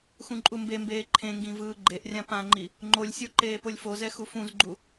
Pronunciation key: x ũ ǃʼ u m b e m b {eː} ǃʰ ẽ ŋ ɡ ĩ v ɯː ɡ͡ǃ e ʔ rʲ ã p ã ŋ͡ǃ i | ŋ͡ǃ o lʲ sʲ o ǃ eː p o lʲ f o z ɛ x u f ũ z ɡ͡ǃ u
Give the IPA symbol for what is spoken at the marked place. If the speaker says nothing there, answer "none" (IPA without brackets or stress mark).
eː